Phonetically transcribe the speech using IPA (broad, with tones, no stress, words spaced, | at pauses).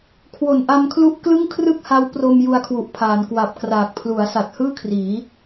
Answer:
kʰwo˨˩nʔa˧mkʰlu˦˥ʔ klɯ˥˩ŋkʰrɯ˥˩k̚ha˦˥w pro˧m ju˧a̯kʰwu˨˩ʔpʰaː˩˦n kwa˨˩p̚kraː˨˩k̚ pʰlu˩˦a̯sa˨˩t̚hɯː˥˩kʰriː˩˦